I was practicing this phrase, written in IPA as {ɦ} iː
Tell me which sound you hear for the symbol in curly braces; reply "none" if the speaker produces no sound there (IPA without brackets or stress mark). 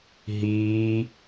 ɦ